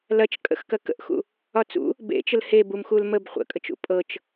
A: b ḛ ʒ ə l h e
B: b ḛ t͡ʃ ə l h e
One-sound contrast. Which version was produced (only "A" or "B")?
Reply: B